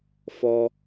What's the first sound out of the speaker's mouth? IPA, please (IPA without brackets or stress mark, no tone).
f